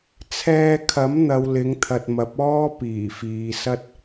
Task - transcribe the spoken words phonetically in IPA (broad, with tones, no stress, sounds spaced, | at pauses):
t͡sʰ ɛː˧ kʰ ɐ˨˥ m n̪ ɐ˨˧ w l ɪ˨˥ ŋ t̪ʰ ɐ˨ t̚ m ɐ˨˥ p̚ ɔː˥ p iː˨˩ f iː˨ s ɐ˥ t̚